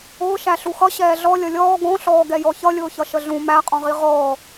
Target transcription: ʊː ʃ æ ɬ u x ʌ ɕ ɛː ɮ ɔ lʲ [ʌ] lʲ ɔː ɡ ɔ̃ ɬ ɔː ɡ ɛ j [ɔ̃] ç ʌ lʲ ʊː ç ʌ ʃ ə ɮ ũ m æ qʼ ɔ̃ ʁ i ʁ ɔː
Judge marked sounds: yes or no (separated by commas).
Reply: yes, no